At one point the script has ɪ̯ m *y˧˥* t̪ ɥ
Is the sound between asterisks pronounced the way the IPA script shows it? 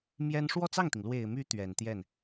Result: yes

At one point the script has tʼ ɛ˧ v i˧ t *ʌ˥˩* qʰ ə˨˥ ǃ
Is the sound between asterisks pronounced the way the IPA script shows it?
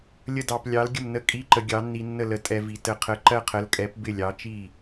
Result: no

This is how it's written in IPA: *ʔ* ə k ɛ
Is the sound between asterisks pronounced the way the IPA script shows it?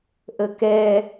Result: yes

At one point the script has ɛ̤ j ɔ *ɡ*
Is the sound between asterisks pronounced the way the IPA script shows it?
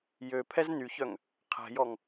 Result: no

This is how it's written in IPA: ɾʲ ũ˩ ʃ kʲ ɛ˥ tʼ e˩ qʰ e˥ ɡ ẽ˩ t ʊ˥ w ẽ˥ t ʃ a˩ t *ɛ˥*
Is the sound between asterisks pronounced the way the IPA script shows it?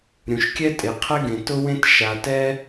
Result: yes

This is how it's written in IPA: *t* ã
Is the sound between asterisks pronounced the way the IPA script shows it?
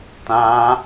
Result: yes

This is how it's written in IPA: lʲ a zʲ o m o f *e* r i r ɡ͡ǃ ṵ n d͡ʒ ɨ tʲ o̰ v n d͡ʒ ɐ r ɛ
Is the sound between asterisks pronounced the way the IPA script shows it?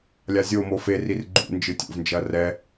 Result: yes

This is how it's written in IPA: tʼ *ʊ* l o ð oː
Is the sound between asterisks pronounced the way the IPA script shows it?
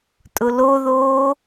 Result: yes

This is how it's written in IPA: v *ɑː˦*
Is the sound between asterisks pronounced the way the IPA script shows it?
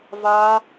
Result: no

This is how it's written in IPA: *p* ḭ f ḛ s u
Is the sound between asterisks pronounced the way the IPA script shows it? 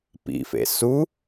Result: yes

